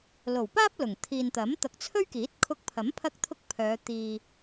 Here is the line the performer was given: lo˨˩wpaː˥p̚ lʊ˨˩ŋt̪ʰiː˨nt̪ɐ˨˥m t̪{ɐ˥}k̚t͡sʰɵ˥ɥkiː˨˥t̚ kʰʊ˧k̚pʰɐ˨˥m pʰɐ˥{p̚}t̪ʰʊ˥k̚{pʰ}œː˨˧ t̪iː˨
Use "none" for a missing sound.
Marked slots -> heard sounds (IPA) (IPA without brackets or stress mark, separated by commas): ɐ˨, k̚, pʰ